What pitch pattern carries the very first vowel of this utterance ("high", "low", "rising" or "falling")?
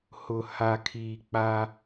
low